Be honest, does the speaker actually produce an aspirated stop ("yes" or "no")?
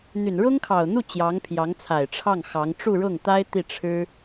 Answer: yes